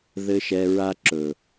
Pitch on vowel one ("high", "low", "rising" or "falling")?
high